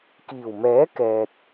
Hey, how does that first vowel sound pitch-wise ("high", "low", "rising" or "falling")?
low